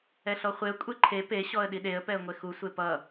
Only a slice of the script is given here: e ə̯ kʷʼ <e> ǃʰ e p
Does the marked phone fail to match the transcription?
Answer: no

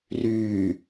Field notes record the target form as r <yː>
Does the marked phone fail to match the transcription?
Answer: no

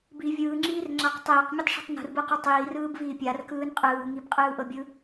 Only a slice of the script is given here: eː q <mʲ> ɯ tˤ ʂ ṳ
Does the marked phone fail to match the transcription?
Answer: no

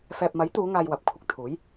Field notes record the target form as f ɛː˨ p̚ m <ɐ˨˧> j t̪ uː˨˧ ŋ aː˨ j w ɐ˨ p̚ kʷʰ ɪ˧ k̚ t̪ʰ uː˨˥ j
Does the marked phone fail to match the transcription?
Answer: yes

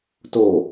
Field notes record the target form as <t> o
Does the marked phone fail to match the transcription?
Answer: no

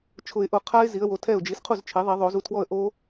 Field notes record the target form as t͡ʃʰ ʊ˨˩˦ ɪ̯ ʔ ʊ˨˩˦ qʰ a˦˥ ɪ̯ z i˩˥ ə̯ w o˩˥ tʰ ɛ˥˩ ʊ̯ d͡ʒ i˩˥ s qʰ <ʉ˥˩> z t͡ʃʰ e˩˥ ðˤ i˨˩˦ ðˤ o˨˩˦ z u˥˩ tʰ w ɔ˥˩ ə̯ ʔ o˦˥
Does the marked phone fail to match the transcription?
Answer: yes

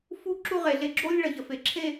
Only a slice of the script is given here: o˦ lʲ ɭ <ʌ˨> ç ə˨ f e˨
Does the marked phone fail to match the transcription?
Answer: no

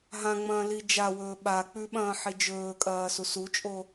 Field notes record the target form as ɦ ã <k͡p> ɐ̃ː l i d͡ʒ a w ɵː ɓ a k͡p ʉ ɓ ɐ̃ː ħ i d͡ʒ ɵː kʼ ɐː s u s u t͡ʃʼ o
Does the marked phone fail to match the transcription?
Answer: yes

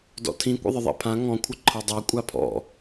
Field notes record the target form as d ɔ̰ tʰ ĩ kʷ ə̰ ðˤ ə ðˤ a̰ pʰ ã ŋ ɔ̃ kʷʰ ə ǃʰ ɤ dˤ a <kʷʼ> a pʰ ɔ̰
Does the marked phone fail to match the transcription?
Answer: no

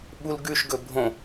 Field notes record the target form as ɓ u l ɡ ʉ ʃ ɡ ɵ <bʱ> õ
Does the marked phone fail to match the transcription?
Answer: no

